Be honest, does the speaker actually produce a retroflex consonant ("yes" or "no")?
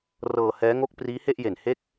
no